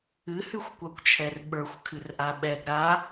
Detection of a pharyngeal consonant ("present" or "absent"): absent